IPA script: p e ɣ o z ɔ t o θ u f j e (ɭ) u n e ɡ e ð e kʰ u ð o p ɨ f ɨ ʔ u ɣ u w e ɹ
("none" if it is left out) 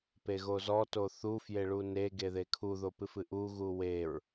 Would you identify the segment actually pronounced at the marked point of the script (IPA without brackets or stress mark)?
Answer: ɭ